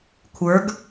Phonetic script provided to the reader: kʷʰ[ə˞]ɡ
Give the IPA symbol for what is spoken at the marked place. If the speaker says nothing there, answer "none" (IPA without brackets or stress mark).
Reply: ə˞